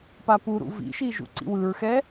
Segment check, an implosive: absent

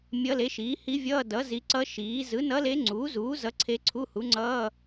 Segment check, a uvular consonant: absent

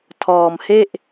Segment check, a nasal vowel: absent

